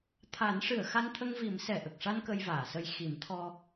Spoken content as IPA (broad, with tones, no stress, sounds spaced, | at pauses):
t̪ʰ a˨˩˦ n ʂ ɨ˨˩˨ ə̯ x a˧ n t̪ʰ ə˧ ŋ v i˨˩˦ m s ɛ˨˩ ʔ ə˨˩ k̚ ʂ a˧ n k ə˧ j v aː˨˩˨ s ə˧ j x i˨˩˦ m t̪ʰ ɔ˧